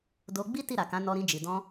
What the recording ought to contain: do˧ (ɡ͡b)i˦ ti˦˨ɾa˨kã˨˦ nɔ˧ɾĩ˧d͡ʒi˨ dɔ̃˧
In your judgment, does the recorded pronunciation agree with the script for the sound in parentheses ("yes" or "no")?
yes